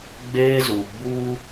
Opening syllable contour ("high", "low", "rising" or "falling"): high